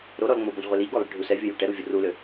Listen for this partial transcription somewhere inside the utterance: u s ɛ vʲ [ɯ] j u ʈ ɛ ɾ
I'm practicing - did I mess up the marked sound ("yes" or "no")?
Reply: yes